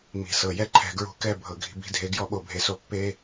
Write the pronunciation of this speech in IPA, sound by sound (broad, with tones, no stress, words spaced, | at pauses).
mi̤˩sɤ˩ jɛ˦ ǃʰɛ̤˧˩˧ɡɹṳ˧˩˧ kɛ˦˨ bʱɤ˩ɡʱi̤˧˩˧ bi̤˨˦dʱe˨˦ ɡjɔ˦ɓo˧˩˧bʱe˨˦so˦˨ pːe˦